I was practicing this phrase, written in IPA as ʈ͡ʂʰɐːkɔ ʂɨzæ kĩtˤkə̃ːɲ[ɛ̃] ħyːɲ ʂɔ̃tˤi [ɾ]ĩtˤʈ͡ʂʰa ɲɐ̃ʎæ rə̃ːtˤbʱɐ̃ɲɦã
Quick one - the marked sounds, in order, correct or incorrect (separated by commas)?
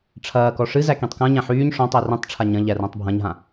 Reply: incorrect, incorrect